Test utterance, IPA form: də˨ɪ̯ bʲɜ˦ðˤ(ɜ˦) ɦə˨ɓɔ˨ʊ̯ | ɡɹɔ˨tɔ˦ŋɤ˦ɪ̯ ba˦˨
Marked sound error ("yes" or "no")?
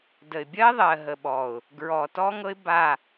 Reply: yes